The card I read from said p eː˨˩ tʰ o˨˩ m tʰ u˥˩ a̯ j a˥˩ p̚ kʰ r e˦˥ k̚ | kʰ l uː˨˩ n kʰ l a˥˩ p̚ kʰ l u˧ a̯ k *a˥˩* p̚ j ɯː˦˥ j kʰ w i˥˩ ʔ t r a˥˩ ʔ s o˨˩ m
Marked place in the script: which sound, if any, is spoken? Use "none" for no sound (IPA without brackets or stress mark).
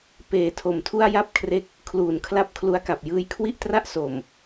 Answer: a˨˩